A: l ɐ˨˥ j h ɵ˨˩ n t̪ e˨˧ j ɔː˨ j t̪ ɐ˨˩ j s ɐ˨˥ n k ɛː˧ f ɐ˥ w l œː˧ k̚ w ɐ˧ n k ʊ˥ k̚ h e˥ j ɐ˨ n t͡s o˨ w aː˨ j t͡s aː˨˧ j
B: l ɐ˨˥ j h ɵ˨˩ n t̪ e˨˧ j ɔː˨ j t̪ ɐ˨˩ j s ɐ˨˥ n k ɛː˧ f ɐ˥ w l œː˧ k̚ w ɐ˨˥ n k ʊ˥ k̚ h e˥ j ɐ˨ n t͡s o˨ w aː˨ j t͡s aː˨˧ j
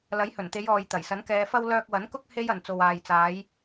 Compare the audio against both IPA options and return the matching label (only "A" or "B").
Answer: B